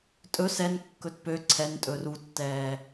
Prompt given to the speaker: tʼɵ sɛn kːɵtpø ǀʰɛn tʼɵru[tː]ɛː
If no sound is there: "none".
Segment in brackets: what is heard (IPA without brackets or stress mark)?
tː